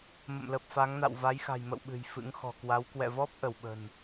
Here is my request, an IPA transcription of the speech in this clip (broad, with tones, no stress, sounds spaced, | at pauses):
m ə̰˧˨ m l ə˨˩ p̚ f a˨˦ ŋ n a̰˧˨ w v a˨˦ j x a̤˨˩ j m ə̰˧˨ w ɓ ɨ̤˨˩ j f ɨ̰˧˥ ŋ x ɔ̤˨˩ k w a˨˦ w k w ɛ̰˧˨ v ɔ˦˥ p̚ ʔ ə˧˩ w ɓ ə̤˨˩ n